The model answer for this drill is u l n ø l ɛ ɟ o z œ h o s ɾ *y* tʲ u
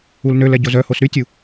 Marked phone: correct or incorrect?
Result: correct